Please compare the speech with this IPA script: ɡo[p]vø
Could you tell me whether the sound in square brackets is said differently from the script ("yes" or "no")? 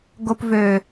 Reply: no